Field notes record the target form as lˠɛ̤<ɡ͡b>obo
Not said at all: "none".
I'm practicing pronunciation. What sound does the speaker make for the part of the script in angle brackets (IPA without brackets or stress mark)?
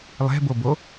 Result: b